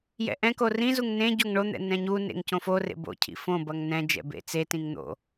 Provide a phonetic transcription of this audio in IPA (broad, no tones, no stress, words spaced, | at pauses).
jɛ̰ʔɛ̃ko rĩzuŋ nẽ ɟoŋɳon̪ɛ̰ nɛ̃ɲunḛŋ cõforḛ bo̰cʰḭ fõ bʌŋnɛ̃d͡ʒɛ̰ bḛt͡setĩŋ n̪o̰